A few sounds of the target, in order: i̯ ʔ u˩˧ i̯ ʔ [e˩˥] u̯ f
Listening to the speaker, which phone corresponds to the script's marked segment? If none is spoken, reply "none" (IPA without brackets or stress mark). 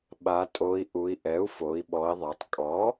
ɛ˩˥